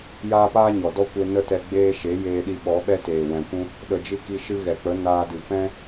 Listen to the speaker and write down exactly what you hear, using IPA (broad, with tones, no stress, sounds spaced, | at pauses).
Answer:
j aː˦ p aː˦ ɲ ɔ˨ d ɔ˦ kʷ e˧ n ə˦ t ɛ˧ ɡ͡b eː˧ ʃ e˨˦ j eː˧ ɗ i˧ ɓ ɔ˨˦ ɓ ɛ˦ t eː˨ w ɛ̃˨ kʷ ũ˦ | ɗ ə˨ d͡ʒ ɨ˧ k i˧ ʃ ɨ˧ ɣ ɛ˨ k͡p ə˨˦ n aː˧ d ɨ˨ p ɛ̃˦